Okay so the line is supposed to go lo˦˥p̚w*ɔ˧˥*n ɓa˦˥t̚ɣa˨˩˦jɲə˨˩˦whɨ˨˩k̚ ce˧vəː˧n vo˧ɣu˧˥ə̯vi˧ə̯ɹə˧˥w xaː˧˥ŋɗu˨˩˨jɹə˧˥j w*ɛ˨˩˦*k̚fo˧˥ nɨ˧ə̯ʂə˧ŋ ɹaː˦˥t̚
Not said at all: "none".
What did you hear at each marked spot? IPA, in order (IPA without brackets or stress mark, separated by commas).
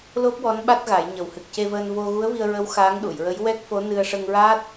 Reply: ɔ˧˥, ɛ˦˥